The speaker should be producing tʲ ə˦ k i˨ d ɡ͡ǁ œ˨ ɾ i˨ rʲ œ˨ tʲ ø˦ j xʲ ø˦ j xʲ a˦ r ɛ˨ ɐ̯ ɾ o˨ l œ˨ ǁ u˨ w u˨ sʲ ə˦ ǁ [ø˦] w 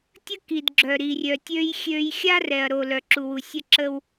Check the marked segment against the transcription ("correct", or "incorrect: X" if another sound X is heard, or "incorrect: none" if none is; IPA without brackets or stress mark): incorrect: ə˦